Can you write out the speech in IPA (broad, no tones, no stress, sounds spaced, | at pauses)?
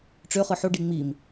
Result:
ʈ͡ʂ ø χ ɯ ħ o ɖ i ŋ͡m i m